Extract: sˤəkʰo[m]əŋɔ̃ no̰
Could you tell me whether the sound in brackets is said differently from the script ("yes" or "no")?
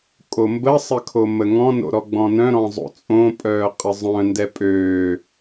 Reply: no